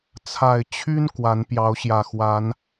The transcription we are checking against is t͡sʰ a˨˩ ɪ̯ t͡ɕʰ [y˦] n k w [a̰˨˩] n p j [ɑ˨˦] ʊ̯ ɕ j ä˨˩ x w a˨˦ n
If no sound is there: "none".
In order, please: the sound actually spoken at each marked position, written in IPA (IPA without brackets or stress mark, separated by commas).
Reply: y˦, a˨˦, ɑ˨˦